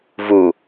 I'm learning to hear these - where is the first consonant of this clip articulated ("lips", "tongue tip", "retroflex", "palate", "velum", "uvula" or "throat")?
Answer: lips